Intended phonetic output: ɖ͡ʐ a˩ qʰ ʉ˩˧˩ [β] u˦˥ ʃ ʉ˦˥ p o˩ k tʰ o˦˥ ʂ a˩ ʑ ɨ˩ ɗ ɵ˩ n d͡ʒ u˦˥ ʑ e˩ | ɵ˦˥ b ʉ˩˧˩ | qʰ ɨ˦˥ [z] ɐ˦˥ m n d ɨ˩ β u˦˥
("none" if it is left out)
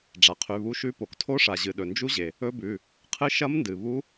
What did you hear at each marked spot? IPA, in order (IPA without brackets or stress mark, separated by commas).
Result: β, ʃ